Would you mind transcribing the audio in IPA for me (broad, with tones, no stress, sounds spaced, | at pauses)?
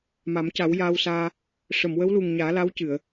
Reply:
m a˨˩˦ m c a˨˩˦ w j aː˧ w s aː˧ | ʂ ə˨˩˨ m w ə˧˥ w l u˨˩ ŋ ɲ aː˨˩˦ l a˧˥ w c ɨ˨˩˨ ə̯